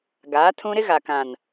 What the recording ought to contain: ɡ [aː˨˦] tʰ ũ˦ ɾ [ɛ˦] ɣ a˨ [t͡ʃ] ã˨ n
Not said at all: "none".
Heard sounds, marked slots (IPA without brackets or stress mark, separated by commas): aː˨˦, ɪ˦, k